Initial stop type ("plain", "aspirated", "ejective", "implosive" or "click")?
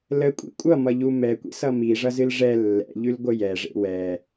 ejective